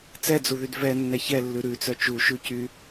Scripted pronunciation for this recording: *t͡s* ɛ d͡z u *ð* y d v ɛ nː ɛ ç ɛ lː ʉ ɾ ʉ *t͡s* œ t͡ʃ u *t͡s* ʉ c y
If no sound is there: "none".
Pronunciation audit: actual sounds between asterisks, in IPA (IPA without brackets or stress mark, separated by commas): t͡s, ð, t͡s, ʃ